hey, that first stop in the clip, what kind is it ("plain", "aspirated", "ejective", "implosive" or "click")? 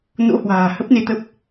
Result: plain